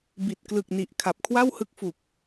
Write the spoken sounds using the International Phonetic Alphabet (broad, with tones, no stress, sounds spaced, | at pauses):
b i˨˩ t̚ k l ɯ˨˩ k̚ n i˨˩ ʔ kʰ a˨˩ p̚ kʰ w a˥˩ w h ɯ˦˥ k̚ f u˨˩ k̚